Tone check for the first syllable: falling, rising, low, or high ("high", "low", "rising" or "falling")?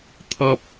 low